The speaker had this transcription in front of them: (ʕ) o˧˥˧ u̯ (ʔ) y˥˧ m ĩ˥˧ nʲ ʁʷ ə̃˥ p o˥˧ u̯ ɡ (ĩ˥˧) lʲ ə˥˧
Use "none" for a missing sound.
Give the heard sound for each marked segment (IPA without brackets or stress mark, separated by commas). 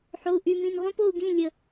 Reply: ħ, ʔ, ĩ˧˥˧